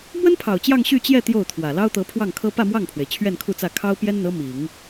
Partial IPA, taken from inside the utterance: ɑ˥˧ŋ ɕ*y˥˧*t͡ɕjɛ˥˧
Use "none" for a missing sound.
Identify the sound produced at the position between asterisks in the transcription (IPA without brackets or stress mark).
y˥˧